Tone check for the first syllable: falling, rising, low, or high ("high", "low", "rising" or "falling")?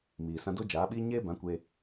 low